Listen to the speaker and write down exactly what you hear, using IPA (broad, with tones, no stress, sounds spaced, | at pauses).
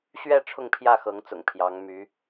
ɕ ɥ ɛ˥˧ ʈ͡ʂʰ ʊ˥˧ ŋ pʰ j ä˥˩ x ɤ˧˥ ŋ t͡s ʊ̰˨˩ ŋ pʰ j ɑ˧˥ ŋ m y˧˥